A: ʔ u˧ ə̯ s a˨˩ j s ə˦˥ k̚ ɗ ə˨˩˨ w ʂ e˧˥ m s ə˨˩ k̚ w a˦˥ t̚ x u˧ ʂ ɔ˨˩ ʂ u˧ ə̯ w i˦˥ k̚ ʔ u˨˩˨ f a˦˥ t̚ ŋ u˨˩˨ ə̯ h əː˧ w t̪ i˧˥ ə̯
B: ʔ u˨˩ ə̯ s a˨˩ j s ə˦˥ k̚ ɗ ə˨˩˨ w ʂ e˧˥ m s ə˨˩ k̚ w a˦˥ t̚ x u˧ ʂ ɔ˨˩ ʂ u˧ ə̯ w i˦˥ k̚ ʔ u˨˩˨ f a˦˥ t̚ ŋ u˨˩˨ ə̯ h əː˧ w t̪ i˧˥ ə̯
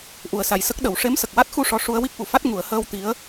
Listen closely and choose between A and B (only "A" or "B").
B